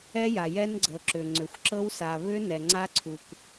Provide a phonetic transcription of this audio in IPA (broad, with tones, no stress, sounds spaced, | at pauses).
ɛ˦˥ j a˩ j ɛ˦˥ n ɡ͡ǀ ɤ˩ ǁ ʏ˩ ŋ͡ǀ ʏ˩ xʷ ǁ ɤ˦˥ w s a˩ β ʏ˦˥ n ɛ˩ ŋ͡ǀ a˦˥ ǀʰ u˩ k